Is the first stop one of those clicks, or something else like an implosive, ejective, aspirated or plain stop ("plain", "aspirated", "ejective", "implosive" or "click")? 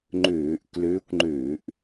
click